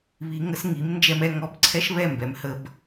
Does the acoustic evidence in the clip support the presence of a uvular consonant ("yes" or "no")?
no